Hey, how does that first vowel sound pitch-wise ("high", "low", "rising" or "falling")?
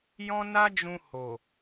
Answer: high